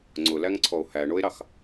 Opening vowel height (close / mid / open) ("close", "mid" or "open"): close